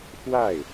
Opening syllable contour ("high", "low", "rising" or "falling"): falling